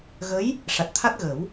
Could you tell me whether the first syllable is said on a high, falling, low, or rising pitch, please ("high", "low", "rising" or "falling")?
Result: rising